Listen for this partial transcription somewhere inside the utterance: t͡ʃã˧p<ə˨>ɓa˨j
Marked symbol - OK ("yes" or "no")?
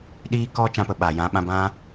yes